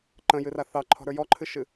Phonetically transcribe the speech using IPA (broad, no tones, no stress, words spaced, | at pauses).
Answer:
ǃə̃jɨra θɑǃʰɔ̤ɾə˞ jɔǃʰɨʃɨ